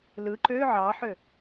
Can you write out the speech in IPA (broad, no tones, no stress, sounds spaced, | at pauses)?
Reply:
l ɯ ǃ ø ʕ ɑ ħ ø